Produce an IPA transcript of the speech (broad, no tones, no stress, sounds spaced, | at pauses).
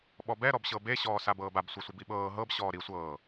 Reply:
ɓ ɔ b ɛ ɾ ɔ b ɕ ɤ b e ɕ ɔː s a b ɤː b a b sʷ e sʷ i b i ɓ ɤː ɦ ɤ b ɕ ɔː ɾ i sʷ ɤː